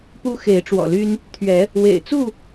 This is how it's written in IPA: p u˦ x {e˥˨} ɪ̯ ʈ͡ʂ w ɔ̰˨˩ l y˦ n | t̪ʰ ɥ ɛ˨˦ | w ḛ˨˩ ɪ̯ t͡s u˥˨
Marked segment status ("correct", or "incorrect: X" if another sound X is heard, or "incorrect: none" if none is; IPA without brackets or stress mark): incorrect: e˨˦